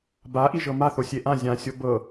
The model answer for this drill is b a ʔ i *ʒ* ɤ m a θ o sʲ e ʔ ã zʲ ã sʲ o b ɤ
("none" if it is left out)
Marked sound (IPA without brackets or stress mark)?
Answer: ʒ